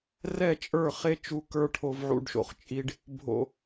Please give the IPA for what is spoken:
r ɛ˦˨ t͡ʃʼ ə˞˦˨ χ e˦ t͡ʃ u˧ k ə˞˧ ʈʰ o˧ v ʕ ṵ˧ ɖ ʃ o̰˨ χ t͡ʃʼ i˧ ɖ | bʱ o̰˨

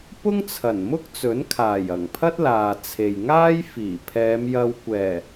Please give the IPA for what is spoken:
p ʊ˥ ŋ t͡sʰ ɐ˨˩ n m ʊ˥ k̚ t͡s ɵ˨˥ n kʰ aː˨˩ j ɐ˨˩ ŋ pʰ ɐ˥ t̚ l aː˨ t͡sʰ e˨ j ŋ aː˥ j f iː˨˩ pʰ ɛː˨˧ m j ɐ˧ w kʷ ɛː˨˩

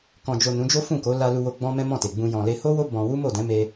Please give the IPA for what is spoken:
k ɔ̃˨ d͡ʒ o˨ n ũ˨˦ d͡ʒ o˦ f ũ˦˨ k o˨˦ l a˧ l u˧ w o˧ ɡ͡b ɔ̃˦ m ɛ̃˦ m ɔ̃˦˨ t e˨ ɡ͡b ũ˧ j ɔ̃˨ l e˧ h o˦ w o˦ b ɔ̃˧ w u˦ m o˦˨ d ɛ̃˨˦ m e˧

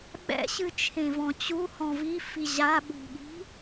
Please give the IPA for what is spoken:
ɓ ɛ̰ ɕ ɨ t͡ʃʰ ẽ v ɔ̃ t͡ɕ u h ɔ̃ v i f i ʑ a ɓ ṳ ɠ i̤

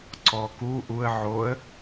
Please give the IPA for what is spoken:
ǀ ɔ k u ʔ u ə̯ ʕ o ə̯

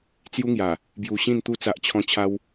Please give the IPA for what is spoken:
t͡s j u˦ ŋ j a˨˩ | b j u˧ ɕ ĩ˥˧ n t̪ u˦ t͡s a˦ ʔ t͡ɕʰ ɔ̃˦ t͡ɕʰ a˦ w

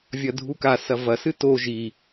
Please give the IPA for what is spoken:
vʲ ɐ dʱ u k a s ɐ v ɐ s ɨ t o ʒ i

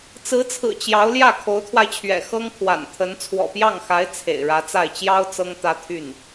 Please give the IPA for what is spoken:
t͡s ɹ̩˧˥ t͡sʰ ɹ̩˨˩ t͡ɕ j ɑ˧˥ ʊ̯ l j ä˥˩ kʰ o˧˥ ʊ̯ t̪ʰ w a˧ ɪ̯ t͡ɕʰ ɥ ɛ̰˨˩ x ɤ˥ ŋ kʰ w a̰˨˩ n t̪ʰ ə˧˥ n t͡sʰ w ɔ̰˨˩ p j ɑ˥˩ ŋ x a˧˥ ɪ̯ t͡sʰ ḛ˨˩ ɪ̯ ɻ ä˧˥ t͡s a˥˩ ɪ̯ t͡ɕ j ɑ˥ ʊ̯ t͡s ɤ˥ ŋ t̪ ä˥ t̪ʰ y˥˩ n

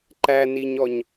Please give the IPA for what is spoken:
ǃ æ n i ɲ ɔ ɲ

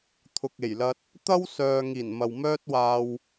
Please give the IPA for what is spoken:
t̪ʰ ʊ˨ k̚ e˨˩ j l ɐ˧ t̚ | t̪ ɐ˥ w s œː˨ ŋ iː˨˩ n m ɐ˨ w m œː˥ t̚ w aː˧ w

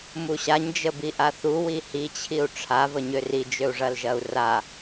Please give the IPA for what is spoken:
m u ɕ a ɲ d͡ʒ ə b i ʔ a θ u w i h i t͡ɕʰ i u̯ ʈ͡ʂʰ a v ə ɲ ø r i d͡ʒ ø u̯ ʐ ɐ l ʒ ɐ u̯ r a

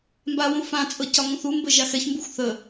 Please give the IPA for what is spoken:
m b a w ũ f ã t͡sʼ ɤ c ɒ ŋ ũ θ u m b ə ʒ a x ɛ ç m b u xʷ θ ə

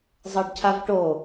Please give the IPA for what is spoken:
zˤ ɤ ɖ cʰ a v ʈ o

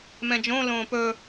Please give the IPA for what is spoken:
m ɛ̃ d͡ʒ õ l õː p ɵ

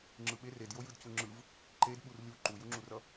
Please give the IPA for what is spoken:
ŋ͡ǁ ɯ ɓ e r e d j o j ɯ d c u ŋ͡ǁ ɯ v | ǃ e d ɓ u r lʲ u ǃ u j u ŋ͡ǁ u r ʌ

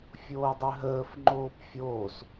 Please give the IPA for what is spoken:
fʲ oː dˤ ø ɦ əː f ŋ͡ǃ oː p fʲ oː s

